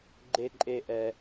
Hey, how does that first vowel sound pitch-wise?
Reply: high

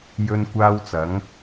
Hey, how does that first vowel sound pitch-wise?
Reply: high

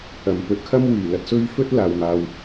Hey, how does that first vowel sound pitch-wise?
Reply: low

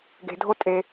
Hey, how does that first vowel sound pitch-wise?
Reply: low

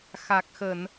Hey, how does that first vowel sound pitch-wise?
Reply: low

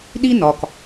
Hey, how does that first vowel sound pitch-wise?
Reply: high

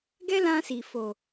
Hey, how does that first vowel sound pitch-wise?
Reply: high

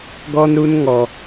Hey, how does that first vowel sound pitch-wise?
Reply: high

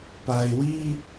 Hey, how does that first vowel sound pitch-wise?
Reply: low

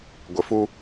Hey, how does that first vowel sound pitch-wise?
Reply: low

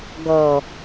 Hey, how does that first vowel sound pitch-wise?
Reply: low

